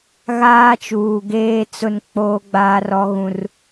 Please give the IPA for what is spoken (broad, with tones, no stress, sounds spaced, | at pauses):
ɣ aː˦ t͡ʃ uː˨ ɡ eː˦ t͡s ʊ˦ n k͡p oː˦ ɡ͡b aː˦ r ɔ˦ ɣ ũ˦ r